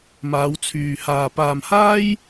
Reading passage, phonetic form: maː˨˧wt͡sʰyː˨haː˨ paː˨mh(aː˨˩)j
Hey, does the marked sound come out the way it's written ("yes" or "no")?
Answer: no